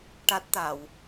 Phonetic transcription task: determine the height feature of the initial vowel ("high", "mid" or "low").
low